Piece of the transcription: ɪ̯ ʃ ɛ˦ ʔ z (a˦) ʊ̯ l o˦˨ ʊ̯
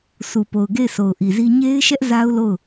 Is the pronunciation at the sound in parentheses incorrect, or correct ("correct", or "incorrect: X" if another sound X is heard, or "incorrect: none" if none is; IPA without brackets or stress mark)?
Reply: correct